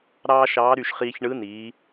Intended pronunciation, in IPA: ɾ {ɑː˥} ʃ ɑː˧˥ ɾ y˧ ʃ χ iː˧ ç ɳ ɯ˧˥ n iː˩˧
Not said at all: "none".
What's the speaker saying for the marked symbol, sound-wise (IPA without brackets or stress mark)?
ɑː˥